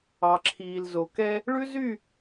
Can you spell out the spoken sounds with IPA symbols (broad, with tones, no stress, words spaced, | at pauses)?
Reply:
ɑ˨ǁʰiː˨lzo˨ kɛ˧ | ɭʉ˦zy˦˨